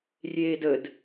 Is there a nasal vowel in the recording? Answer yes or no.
no